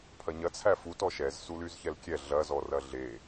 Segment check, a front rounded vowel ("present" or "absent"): present